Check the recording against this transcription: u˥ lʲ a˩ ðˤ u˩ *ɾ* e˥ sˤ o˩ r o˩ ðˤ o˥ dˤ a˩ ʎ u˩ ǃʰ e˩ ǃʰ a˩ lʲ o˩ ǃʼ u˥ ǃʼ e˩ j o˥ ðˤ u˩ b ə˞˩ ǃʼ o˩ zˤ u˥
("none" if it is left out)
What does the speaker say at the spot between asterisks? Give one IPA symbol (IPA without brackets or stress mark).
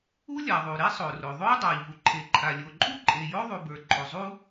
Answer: ɾ